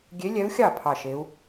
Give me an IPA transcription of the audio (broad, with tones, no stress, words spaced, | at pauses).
ɡʲe˧˥lʲɛ˧˥u̯xʲɑ˥˩ pʰɑ˥˩ ʃe˧˥u̯